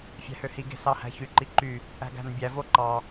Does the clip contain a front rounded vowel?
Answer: yes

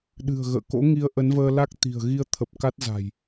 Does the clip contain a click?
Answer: no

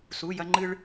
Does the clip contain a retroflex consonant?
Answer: yes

